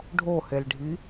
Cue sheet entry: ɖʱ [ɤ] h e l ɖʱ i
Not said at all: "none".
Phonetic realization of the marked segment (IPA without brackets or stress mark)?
o